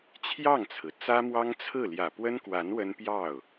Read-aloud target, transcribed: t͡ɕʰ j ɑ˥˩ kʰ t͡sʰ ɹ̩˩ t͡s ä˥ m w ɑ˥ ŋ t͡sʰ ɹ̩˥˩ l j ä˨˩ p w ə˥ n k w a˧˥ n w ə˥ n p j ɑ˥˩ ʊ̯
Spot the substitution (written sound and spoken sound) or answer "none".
kʰ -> ŋ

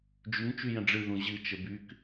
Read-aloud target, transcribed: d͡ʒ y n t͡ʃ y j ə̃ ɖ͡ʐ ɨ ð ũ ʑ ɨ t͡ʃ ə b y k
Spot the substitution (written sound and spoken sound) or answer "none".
none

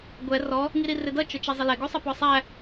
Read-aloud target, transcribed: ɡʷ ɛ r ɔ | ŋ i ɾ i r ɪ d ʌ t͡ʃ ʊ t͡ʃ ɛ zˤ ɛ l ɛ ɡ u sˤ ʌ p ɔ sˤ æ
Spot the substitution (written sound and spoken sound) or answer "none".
none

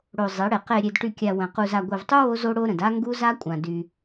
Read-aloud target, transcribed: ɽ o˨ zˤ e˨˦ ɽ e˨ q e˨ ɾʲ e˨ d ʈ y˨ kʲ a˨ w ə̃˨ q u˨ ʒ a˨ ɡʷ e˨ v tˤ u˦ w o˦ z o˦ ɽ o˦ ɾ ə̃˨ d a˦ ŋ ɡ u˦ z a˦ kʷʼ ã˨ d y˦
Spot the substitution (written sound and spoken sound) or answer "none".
ʒ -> z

